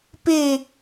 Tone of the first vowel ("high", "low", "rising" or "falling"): falling